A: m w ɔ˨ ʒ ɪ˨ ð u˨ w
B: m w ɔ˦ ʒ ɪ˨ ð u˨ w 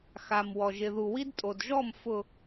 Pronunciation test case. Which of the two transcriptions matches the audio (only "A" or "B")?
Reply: A